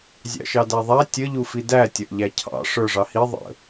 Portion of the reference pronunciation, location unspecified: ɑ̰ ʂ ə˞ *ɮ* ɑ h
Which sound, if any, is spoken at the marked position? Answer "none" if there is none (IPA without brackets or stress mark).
ʐ